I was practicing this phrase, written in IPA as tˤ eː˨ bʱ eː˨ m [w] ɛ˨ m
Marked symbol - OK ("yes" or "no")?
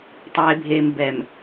no